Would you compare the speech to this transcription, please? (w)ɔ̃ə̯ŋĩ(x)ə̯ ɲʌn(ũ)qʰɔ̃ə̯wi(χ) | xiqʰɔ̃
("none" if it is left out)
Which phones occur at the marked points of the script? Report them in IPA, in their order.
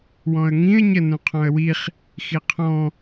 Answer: w, none, ũ, χ

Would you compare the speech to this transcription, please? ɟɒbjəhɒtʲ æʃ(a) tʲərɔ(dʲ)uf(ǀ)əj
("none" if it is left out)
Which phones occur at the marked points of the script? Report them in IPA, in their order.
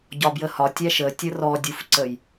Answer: ə, dʲ, ǀ

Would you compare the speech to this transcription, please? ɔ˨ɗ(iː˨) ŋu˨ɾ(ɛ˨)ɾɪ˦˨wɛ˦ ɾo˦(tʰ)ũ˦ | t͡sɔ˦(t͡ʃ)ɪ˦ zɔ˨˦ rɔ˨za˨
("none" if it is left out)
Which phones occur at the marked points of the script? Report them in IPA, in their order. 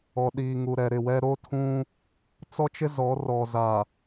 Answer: iː˨, ɛ˨, tʰ, t͡ʃ

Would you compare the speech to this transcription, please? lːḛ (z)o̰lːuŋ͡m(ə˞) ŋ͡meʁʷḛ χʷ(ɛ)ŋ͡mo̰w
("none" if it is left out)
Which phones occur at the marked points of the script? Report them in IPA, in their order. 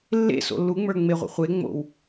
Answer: s, ə˞, e

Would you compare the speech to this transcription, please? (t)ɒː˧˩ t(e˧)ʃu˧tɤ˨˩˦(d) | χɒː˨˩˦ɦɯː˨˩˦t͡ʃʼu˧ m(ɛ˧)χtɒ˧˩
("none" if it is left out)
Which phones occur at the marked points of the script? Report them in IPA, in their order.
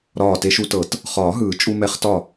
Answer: ɾ, e˧, t, ɛ˧

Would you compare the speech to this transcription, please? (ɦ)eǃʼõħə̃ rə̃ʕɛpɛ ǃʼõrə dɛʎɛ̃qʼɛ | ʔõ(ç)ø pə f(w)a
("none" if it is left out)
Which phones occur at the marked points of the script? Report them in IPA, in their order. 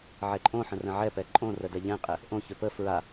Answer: ʕ, ç, ɹ

